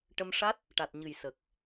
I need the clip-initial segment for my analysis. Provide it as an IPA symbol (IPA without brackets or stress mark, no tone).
ʈ